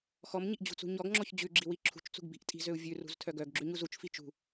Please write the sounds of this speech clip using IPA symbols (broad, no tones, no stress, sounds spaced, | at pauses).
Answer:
x ɔ m ɲ i ʔ d͡ʑ ṳ t͡s ṳ ɲ ɔ ɡ ŋ͡ǁ ɔ ç d͡ʑ ʉ ɡ͡ǁ i w i ǁʰ ṳ t͡ʃ t͡s ṳ ɡ b i̤ ʔ tʼ i̤ z ø u̯ vʲ ʉ r ṳ z tʰ œ ɡ œ ɡ ɡ͡ǁ ʉ ɲ u z u t͡ʃ f i t͡ʃ ṳ